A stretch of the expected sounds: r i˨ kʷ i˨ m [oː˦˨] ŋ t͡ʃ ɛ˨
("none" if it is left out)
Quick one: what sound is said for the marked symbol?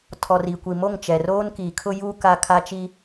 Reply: o˦˨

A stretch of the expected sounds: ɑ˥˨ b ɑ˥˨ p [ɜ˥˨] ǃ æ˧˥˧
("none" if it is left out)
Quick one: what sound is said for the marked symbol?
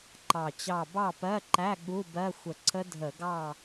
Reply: ɜ˧˥˧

